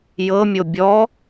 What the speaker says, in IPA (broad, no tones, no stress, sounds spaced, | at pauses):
j ɤ mʲ o bʲ ɔ